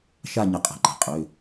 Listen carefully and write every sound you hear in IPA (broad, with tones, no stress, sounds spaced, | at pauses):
ʃ a˥˧ ɲ ə˨˦ qʼ ə̤˩˧˩ ǃ a̤˩ qʼ ø˩˧˩